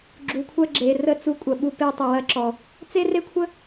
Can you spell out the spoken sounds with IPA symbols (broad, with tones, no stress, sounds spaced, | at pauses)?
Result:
ɡ͡ǁ u˨ kʷʰ ɐ˦ ɡ͡ǁ e˨ r ə˦ t͡s u˧ kʷʼ ɐ˨ ɓ u˧ p e˧ tˤ ɵ˨ w ɐ˧ ǁ ɔ˨ | t͡s e˦ r e˦ kʷʰ ə˦